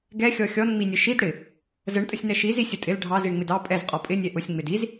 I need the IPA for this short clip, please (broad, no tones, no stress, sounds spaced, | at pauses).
ɡ ɛ xʲ ɔ xʲ ɔ n ŋ͡m i nʲ ə ʃ i d ɽ ɪ | z ə ɳ tʼ ə sʲ n ɛ ʃ i z i sʲ ə tʼ ɪ l ɖʱ ɑ z i ɳ ŋ͡m ɪ d ɑ pʼ ɛ z qʼ ɔ pʼ ɪ nʲ ɛ ʔ ʊ sʲ ŋ͡m ɪ d i z